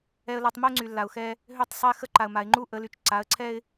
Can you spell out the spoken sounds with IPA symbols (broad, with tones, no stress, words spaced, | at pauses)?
ɛ˦ə̯la˦tˤ mə˦ʊ̯ŋ͡ǀy˨ lːa˨ʊ̯xɛ˦ | ɦø˦˨tˤsˤɛ˦xə˦ ǃa˨ə̯ma˨ɪ̯ŋ͡ǃu˦ ʔə˨˦ly˨t͡ʃ ǀa˨˦ə̯ǀʰɛ˦ɪ̯